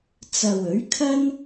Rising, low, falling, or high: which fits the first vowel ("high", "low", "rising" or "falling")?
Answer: low